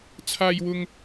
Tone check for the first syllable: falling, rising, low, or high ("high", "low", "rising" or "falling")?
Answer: high